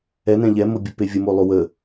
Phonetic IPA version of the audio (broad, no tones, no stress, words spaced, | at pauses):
ɛnɛ̃ ʎɛmobʲəpe vʲəmolˠo wə